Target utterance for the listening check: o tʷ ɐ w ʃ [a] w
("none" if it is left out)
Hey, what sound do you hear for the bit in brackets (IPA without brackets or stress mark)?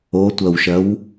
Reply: ɐ